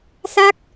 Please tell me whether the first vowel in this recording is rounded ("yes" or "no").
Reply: no